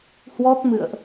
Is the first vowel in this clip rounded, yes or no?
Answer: yes